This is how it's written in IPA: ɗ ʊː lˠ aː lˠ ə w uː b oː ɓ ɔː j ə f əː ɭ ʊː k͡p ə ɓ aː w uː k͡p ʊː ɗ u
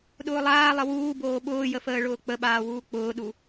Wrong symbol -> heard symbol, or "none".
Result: ɔː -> ʊː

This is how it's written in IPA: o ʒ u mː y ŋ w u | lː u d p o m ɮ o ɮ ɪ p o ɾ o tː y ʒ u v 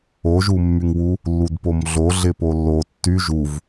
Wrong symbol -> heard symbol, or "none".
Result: ɾ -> lː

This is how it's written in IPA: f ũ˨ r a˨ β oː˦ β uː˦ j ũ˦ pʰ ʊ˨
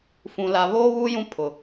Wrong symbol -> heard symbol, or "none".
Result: r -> l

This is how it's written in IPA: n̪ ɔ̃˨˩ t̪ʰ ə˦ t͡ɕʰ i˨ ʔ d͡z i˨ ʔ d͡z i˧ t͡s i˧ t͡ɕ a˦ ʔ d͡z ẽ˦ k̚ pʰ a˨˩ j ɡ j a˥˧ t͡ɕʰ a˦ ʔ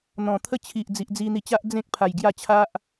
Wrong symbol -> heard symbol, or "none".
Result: t͡s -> n̪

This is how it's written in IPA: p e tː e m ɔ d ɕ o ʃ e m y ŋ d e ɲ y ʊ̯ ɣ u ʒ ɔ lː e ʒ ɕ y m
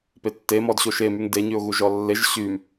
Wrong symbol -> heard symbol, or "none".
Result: none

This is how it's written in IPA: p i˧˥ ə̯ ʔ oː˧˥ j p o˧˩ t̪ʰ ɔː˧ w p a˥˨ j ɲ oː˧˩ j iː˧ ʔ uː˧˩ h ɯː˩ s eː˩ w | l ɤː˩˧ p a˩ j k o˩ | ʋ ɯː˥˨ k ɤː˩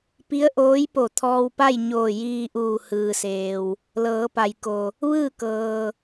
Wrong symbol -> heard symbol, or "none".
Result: none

